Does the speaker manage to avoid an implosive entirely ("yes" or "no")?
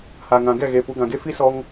yes